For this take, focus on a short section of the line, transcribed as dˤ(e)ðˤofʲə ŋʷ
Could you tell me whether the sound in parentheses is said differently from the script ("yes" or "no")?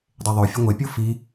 no